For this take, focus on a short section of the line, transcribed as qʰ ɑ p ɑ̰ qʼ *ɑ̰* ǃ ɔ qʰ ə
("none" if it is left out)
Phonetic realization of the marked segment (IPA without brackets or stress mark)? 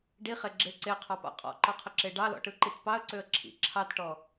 ɔ̰